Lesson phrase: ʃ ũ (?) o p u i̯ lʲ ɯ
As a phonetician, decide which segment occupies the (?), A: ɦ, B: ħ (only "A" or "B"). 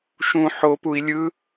B